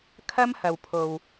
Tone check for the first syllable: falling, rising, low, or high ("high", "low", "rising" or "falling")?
high